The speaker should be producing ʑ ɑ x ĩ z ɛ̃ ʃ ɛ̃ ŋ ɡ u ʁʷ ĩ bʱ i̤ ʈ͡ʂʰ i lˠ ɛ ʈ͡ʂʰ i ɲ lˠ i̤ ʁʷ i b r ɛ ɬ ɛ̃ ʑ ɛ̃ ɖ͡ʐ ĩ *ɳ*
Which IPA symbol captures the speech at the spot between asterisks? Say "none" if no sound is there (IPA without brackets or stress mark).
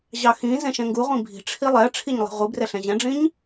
ɲ